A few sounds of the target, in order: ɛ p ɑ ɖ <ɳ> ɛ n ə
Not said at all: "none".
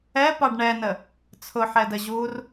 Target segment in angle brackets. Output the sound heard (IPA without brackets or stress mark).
ɳ